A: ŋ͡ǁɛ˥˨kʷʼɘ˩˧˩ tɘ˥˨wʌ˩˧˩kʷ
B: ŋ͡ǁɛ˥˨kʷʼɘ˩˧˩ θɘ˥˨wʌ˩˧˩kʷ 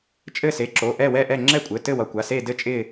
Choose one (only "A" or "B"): A